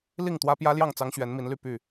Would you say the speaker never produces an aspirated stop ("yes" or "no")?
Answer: yes